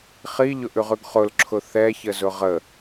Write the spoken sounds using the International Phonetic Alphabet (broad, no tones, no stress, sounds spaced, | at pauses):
χ i ʎ ʊ ʔ ʉ ʁ ʉ ɡ χ ʊ l ǁʰ ʊ θ ɛ ç ə z ʊ ʁ ə